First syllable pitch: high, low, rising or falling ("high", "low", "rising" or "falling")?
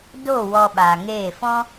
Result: falling